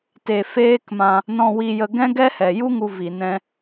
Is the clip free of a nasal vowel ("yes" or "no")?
no